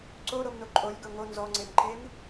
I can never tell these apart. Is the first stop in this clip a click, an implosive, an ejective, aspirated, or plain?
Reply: click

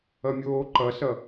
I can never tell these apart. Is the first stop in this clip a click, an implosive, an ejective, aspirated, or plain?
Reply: click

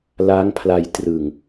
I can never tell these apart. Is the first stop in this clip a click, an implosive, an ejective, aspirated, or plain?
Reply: aspirated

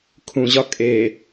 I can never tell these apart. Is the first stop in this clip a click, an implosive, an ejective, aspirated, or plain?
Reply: aspirated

